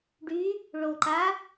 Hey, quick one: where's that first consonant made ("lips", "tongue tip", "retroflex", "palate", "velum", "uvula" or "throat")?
retroflex